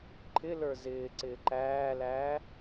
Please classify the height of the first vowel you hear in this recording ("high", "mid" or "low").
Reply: high